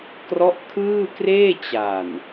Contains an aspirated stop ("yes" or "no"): yes